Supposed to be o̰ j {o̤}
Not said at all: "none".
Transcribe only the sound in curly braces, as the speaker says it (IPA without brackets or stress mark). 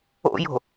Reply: o̤